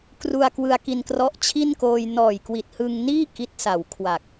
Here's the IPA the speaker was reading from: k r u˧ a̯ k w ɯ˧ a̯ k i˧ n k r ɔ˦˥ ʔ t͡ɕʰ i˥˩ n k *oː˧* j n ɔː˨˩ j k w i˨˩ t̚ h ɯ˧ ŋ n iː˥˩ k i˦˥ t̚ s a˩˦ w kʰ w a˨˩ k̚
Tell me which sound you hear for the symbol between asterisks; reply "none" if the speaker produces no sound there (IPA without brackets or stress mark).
oː˧